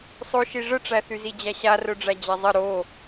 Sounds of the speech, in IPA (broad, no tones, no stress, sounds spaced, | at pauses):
sˤ o ʃ i ʐ ə ʈ͡ʂ æ θ y z i d͡ʑ æ ɕ a r œ ɖ͡ʐ æ d͡ʑ a zˤ ə ɾ o